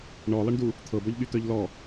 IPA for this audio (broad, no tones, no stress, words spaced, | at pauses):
ɳɔlˠʌɳdu | t̪ʰɤbɔʎɠyt̪œʎ lɔ